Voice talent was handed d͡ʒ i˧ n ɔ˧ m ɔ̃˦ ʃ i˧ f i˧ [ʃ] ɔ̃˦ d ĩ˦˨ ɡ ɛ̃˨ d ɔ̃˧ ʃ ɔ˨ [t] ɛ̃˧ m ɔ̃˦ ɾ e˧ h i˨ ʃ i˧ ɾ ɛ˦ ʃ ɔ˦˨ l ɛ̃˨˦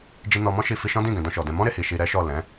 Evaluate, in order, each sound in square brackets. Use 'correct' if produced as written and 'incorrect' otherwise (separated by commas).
correct, incorrect